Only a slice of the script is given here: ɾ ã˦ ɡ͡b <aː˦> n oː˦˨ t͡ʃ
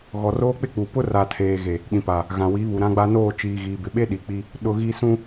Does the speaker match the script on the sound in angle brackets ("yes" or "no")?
no